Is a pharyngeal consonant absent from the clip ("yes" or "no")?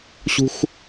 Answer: yes